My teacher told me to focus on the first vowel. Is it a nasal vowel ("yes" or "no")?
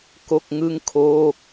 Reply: no